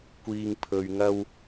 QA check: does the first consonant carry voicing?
no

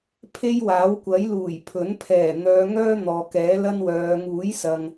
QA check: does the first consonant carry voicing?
no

